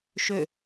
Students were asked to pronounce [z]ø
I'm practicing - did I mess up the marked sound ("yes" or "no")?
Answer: yes